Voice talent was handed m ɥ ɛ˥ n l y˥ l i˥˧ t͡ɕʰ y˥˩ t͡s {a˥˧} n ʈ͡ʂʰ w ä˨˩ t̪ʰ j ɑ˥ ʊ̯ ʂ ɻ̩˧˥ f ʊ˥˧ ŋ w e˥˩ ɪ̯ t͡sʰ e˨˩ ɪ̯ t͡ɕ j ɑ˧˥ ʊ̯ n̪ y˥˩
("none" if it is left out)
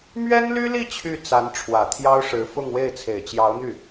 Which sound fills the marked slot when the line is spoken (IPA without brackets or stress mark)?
a˧˥